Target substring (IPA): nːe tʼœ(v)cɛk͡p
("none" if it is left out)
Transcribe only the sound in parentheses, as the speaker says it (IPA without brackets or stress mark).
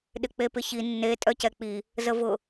none